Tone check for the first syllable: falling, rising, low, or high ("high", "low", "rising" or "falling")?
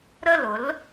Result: falling